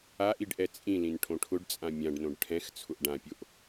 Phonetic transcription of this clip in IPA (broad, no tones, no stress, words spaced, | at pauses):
aʔ iɖʔɛt͡sʼĩlĩn ʈʰõʈʰʊɖt͡sʼã mʲãɖnõɖ ʈʰɛ̃x t͡sʰʊʔɖãpʲoʔ